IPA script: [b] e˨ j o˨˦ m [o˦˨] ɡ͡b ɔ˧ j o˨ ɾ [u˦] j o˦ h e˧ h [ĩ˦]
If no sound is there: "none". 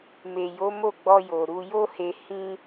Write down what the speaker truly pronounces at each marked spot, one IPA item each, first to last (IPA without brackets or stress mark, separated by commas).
m, o˦˨, u˧, ĩ˦